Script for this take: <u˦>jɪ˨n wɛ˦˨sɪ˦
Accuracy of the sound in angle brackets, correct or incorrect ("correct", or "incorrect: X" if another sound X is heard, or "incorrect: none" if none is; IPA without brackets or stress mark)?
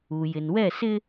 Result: incorrect: u˨